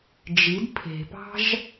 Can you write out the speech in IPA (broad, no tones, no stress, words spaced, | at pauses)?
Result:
d͡ʒid pʰe̤pɑ̤ʒ